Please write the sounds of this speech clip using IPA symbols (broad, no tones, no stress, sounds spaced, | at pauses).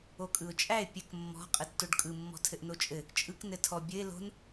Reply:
o kʼ ɯ ʊ̯ t͡ʃʼ æ ɪ̯ pʲ ɘ k mː ɔ̤ qʼ ɘ tː o ɖ kʼ ɯ mː ɔ̤ tʰ ɘ ʔ n o t͡ʃʼ ɘ | t͡ʃʼ ɯ k n ɘ tʰ ɔ bʲ ɘ ɪ̯ l o̤ n